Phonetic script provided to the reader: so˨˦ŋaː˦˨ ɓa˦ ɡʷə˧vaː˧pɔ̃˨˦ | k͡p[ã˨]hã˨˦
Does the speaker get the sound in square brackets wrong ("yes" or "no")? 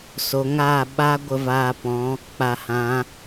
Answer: yes